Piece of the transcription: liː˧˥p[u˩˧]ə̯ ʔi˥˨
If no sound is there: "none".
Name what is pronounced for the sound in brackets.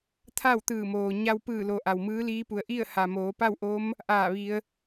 u˩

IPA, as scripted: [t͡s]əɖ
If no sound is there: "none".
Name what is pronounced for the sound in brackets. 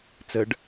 t͡s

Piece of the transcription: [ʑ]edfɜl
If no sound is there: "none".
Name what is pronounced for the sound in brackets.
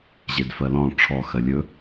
ʑ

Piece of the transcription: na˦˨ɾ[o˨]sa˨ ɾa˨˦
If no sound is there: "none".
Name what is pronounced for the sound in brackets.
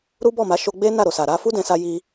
o˨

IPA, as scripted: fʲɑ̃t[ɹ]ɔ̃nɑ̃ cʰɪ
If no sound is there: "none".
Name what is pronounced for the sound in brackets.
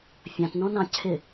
n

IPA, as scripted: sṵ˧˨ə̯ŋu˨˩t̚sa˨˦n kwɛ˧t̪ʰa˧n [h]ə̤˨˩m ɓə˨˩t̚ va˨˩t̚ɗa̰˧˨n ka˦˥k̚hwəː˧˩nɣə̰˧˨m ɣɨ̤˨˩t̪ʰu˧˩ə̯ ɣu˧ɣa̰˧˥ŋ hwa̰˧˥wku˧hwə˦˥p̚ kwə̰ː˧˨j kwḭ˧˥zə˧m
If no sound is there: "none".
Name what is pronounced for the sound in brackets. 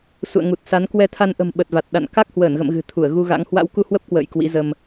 ʔ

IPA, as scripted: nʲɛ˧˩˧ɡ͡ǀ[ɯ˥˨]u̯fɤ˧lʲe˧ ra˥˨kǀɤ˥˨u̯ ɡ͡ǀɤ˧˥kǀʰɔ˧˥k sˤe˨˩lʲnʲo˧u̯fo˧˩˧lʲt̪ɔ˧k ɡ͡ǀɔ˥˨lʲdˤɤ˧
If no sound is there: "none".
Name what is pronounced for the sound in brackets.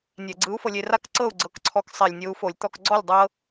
ɯ˧˥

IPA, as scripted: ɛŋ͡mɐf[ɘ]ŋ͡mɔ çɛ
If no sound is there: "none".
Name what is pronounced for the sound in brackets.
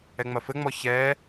ɘ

